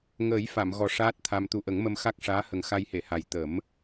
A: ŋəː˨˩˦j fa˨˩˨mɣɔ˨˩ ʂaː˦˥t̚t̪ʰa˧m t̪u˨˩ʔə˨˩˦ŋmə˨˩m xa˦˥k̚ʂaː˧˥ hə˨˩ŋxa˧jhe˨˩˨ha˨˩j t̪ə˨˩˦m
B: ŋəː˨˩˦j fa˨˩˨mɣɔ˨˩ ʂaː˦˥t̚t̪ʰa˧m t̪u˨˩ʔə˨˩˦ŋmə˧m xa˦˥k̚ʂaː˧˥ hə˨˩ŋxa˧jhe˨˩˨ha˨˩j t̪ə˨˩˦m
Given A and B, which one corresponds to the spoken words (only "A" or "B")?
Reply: B